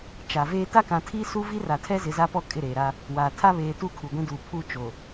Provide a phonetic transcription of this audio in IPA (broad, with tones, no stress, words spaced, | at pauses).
t͡ʃa˨veː˦ ta˦kã˨tʰi˦su˦ vi˦ra˨tʰɛ˦ zɪ˨˦za˦pɔ˦ kʼɪ˦˨ɾeː˨ɾa˦ | waː˨ tʰa˦βeː˨tu˦˨ kʰu˨ɡʷĩ˦duː˨ pʰu˦˨ t͡ʃo˨